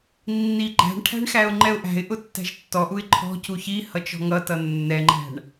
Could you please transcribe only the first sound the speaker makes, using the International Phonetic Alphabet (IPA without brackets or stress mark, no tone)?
nː